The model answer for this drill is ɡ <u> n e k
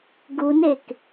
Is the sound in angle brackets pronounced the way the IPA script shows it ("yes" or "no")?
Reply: yes